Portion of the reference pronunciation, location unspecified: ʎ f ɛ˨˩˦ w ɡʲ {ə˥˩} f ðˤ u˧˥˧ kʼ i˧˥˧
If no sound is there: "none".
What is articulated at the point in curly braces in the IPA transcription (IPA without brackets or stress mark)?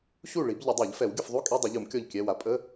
ə˥˩